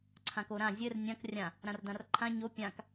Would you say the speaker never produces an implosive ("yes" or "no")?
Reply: yes